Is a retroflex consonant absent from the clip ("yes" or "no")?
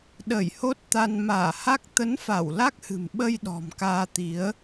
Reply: yes